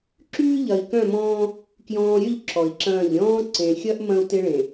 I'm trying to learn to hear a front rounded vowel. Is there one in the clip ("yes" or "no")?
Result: yes